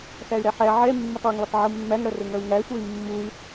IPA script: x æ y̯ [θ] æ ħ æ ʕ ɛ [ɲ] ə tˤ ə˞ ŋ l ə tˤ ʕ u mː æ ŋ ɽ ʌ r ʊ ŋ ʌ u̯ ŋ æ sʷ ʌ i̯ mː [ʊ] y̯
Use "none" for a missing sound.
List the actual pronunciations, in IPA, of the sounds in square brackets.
ɾ, mː, u

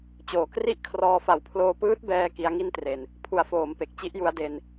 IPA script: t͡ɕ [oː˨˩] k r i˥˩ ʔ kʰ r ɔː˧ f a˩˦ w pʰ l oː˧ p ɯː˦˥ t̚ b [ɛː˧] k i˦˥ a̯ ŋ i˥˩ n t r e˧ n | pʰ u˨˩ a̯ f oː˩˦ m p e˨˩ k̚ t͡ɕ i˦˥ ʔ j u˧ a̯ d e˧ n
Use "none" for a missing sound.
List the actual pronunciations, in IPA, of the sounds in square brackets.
oː˨˩, ɛː˧

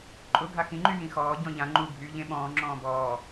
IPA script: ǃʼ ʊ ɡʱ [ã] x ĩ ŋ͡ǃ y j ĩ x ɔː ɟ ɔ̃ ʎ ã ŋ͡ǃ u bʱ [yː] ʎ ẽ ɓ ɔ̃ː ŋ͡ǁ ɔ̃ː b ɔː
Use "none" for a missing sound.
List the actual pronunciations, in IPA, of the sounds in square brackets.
a, yː

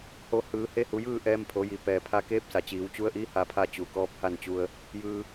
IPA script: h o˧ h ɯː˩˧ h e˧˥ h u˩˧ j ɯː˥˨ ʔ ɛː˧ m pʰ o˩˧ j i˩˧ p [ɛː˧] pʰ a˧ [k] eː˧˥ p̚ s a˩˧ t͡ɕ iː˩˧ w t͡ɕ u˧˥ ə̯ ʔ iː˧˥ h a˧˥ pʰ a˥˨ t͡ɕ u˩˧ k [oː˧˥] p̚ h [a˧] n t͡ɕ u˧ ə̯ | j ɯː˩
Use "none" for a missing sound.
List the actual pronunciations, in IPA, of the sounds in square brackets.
ɛː˩, k, ɔː˧˥, a˥˨

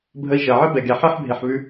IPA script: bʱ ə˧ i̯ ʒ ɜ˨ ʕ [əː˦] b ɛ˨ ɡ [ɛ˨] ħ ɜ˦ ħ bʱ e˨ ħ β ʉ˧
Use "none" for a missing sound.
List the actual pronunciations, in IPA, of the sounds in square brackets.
ə˦, ɛ˨

